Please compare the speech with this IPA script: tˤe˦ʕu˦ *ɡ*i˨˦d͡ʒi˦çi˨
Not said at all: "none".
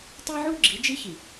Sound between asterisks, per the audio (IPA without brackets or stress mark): ɡ͡ǁ